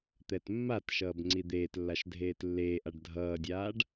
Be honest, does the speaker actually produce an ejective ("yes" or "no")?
no